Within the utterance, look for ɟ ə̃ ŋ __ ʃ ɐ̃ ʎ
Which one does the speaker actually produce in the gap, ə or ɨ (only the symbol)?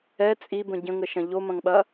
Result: ə